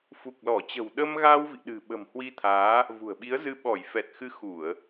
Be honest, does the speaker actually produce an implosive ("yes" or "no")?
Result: yes